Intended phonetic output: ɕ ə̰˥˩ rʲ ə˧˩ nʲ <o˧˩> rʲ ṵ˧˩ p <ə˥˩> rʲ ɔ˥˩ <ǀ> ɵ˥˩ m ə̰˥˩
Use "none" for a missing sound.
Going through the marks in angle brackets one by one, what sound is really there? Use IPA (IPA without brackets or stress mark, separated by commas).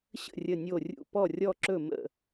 o˧˩, ɔ˥˩, ǁ